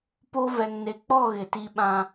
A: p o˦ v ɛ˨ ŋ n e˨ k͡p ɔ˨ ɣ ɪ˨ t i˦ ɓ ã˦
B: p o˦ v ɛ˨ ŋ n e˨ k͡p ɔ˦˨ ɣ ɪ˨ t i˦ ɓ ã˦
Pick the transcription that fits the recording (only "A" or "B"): B